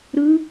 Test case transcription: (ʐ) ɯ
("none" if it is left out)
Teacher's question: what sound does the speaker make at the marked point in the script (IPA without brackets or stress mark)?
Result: ɾ